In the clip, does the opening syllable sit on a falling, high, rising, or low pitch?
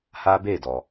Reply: high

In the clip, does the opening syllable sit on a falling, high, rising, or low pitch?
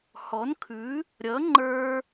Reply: rising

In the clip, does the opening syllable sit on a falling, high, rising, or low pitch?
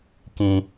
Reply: low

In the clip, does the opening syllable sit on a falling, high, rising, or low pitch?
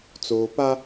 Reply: low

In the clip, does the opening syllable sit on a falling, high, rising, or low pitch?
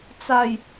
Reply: low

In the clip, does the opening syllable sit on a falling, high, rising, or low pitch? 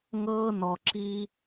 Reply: high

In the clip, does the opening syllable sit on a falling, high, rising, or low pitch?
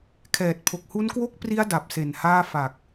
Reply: low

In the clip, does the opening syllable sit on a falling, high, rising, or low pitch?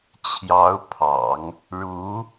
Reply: rising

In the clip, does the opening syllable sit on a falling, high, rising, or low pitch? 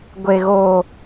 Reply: low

